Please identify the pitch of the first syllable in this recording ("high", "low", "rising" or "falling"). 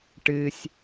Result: low